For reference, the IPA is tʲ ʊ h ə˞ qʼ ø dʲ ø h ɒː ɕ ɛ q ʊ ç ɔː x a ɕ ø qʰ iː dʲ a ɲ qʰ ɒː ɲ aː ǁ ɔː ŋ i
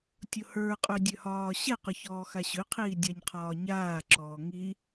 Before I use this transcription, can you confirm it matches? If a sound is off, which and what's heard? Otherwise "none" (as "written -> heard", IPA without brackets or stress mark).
none